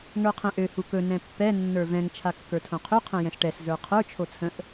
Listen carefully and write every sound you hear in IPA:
ŋə˞qʰɛ̃ʔø hukɵ nɛ̃pːɛ nːə˞vɛ̃ŋ t͡ʃʰakːə˞tʰõqʰø qʰɛ̃jɛ̃sʈɛs zə˞qʰə˞ t͡ʃʰot͡sʰə̃ʔ

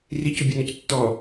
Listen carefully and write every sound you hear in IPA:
ricubʲonɔc tːɔ

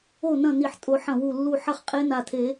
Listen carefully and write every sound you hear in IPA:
o˥˨nɐ̃˥˨ ni˧˩ħtʼo˨˩˦ħɐ̃˧˩wu˧˩ lːu˧˩ ħɐ˥˨χqʼe˧˥na˧˩tʰe˨˩˦

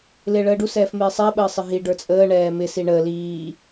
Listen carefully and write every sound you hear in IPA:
lɪːɭəːɖu sɛːfmɪːsˤɛ ɓəːsˤɪɦi ɖə˞t͡sʼəː ɳɛːmɪ siɳəː liː

